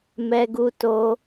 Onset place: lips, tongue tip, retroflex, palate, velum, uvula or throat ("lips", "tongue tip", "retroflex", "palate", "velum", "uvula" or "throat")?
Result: lips